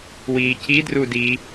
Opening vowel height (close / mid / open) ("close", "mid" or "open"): close